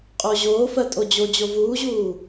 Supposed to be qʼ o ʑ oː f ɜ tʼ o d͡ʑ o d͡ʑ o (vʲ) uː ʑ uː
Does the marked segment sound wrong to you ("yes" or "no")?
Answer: yes